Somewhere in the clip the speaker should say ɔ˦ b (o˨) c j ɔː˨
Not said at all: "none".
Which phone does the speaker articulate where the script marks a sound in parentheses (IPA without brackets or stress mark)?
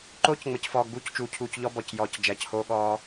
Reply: ɔ˨